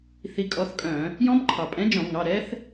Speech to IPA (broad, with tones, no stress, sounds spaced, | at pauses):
θ i˨˥ kʼ ɔ˨˥ θ kʼ œ̃˧˩˧ | j ɔ̃˦˥ b ǃʰ ɑ˩ pʼ ɛ̃˨˥ d͡ʒ ɔ̃˧˩˧ ŋ ɑ˩˧˩ ɾ ɛ˦˥ θ